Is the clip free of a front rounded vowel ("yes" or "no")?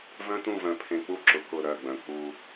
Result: no